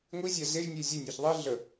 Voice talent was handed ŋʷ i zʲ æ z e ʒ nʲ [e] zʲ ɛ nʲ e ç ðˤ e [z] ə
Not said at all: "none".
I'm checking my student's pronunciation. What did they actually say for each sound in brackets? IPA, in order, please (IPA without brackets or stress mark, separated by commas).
e, ɮ